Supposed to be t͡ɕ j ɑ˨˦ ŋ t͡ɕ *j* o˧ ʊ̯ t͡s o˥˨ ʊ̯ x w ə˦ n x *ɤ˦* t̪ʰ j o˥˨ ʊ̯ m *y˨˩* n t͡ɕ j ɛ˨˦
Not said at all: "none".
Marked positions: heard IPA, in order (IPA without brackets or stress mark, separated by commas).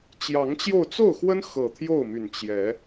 j, ɤ˨˩, y˨˩